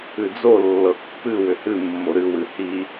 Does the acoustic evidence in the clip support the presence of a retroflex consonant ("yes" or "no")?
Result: no